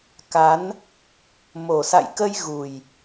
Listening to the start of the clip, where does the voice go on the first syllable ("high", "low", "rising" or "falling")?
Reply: rising